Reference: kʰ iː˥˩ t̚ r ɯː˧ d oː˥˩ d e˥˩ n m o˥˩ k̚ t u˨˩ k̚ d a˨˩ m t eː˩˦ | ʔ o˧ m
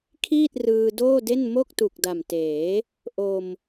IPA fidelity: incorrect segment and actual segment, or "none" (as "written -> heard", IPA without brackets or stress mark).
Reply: none